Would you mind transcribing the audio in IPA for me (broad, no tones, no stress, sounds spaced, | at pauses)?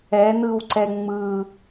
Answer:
ɛ n̪ ɯ w ǀ ɛ ŋ͡m ɯ